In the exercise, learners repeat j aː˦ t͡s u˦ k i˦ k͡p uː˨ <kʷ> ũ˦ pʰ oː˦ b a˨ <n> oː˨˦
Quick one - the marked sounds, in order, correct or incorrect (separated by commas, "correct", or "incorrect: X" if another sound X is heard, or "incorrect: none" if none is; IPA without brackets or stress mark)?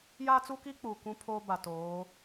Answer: correct, incorrect: t